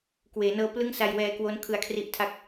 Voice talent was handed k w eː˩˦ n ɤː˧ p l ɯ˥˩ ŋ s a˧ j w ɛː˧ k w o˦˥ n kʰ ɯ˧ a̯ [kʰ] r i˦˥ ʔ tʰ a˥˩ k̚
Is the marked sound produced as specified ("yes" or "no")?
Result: yes